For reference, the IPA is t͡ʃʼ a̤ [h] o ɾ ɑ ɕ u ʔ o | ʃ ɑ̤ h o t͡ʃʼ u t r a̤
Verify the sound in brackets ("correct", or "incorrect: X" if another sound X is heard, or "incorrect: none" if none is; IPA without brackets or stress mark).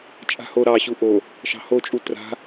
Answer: correct